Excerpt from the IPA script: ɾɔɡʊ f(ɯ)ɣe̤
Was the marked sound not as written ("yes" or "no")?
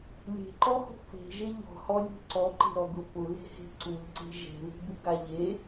yes